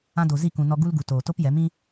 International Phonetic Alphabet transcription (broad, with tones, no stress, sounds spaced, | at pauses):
ã˧ d o˨ z i˦˨ k ũ˨ n ɔ˧ ɡ u˦ l ɡ u˨ t oː˨ t o˦ p j ɛ˨˦ m ĩ˦